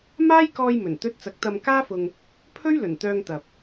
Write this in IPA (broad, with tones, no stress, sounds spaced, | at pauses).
m aː˥ j k ɔː˧ j m ɵ˨˩ n t̪ ɵ˧ t̚ t͡s ɐ˨˥ k̚ t̪ ɐ˧ m k aː˥ f ʊ˧ ŋ | pʰ ɵ˥ ɥ l ɵ˨˩ n t̪ œː˧ ŋ t̪ ɐ˨ p̚